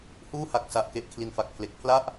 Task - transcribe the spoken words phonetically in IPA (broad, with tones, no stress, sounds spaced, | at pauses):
h uː˥˩ h a˨˩ k̚ s a˨˩ ʔ k e˨˩ ʔ kʰ l i˨˩ n f a˨˩ k̚ pʰ l e˨˩ k̚ pʰ l a˥˩ ʔ